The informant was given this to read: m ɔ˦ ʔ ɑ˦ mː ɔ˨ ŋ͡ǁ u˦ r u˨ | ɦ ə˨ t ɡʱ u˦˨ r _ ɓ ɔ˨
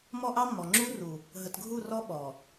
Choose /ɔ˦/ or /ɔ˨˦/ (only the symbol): ɔ˦